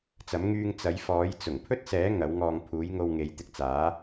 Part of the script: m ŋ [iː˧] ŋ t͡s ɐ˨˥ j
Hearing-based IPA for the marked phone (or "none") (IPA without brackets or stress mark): yː˧